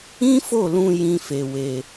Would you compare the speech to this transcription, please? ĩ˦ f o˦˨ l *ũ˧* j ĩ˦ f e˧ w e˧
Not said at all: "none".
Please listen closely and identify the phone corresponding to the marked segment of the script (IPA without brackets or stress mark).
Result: ũ˧